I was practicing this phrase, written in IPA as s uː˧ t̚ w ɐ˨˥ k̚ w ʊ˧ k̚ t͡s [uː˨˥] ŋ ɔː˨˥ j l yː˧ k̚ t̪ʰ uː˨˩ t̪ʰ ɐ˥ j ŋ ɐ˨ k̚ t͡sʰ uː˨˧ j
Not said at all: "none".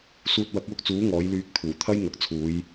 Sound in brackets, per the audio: uː˨˥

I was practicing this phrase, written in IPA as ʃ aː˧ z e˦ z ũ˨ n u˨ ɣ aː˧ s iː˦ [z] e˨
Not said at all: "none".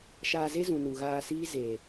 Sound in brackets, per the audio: z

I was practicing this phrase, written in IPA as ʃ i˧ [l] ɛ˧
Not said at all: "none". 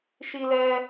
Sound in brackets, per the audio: l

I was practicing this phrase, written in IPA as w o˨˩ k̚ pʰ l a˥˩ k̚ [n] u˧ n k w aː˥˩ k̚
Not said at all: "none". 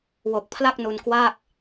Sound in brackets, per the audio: n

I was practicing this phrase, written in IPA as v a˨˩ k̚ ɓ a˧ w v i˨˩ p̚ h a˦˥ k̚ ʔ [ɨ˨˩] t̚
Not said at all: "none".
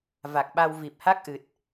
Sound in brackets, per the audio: ɨ˨˩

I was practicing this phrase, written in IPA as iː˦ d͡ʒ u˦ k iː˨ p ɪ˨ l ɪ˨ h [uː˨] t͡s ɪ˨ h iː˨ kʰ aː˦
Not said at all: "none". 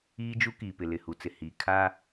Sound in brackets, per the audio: u˨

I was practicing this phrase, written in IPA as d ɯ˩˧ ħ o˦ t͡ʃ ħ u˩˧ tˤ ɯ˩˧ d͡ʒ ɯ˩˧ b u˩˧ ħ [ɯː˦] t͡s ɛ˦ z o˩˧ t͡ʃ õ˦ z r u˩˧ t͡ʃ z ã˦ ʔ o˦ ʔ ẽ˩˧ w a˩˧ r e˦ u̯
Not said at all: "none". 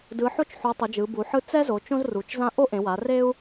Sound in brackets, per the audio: ɯ˦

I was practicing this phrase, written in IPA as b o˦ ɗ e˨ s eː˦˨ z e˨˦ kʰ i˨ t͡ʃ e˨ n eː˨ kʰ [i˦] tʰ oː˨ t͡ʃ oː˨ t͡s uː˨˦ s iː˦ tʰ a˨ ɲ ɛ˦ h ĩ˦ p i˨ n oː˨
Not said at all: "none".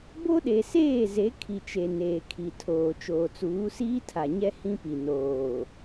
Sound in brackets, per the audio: i˨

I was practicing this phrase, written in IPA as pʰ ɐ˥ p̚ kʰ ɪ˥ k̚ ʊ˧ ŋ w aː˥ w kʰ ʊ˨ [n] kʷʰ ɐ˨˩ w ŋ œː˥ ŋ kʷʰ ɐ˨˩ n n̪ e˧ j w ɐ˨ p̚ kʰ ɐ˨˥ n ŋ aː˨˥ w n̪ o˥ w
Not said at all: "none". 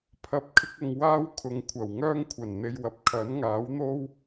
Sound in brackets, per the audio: ŋ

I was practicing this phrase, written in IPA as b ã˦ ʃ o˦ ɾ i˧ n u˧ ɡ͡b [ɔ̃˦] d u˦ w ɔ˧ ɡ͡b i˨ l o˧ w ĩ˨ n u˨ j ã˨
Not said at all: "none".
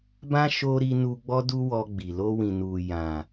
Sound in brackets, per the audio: ɔ˦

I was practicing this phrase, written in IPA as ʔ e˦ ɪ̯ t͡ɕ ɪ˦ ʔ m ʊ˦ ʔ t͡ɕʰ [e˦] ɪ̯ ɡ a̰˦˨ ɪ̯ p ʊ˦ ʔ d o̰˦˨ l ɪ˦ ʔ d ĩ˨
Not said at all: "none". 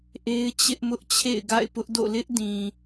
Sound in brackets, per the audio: ḛ˦˨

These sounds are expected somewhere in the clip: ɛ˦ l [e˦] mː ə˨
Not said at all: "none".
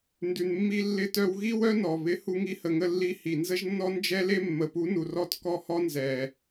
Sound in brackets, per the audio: e˦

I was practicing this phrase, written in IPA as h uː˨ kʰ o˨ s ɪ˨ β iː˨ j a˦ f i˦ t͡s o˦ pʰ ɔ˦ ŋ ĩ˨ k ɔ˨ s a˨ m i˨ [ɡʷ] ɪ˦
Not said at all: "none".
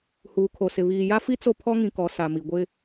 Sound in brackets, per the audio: ɡʷ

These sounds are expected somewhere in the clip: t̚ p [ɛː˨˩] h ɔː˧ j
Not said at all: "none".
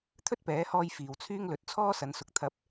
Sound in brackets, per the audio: ɛː˨˥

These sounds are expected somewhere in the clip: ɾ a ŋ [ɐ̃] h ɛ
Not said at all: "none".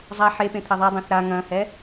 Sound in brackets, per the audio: ɐ̃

